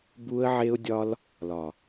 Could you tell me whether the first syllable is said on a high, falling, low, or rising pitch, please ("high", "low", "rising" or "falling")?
high